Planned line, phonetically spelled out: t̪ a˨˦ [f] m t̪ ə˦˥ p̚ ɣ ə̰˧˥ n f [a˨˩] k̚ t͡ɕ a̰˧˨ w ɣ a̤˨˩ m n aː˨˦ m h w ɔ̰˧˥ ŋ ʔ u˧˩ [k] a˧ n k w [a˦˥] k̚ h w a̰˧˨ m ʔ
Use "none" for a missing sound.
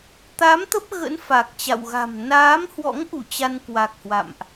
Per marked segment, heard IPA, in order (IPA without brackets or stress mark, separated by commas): none, a˨˩, t͡ɕ, a˨˩